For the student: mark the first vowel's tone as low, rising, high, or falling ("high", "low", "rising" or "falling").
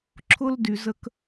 high